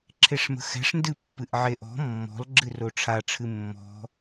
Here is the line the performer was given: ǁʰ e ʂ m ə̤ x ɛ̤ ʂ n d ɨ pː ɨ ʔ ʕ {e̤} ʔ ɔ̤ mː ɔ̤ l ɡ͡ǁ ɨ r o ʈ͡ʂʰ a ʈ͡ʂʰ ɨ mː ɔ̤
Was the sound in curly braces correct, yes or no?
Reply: no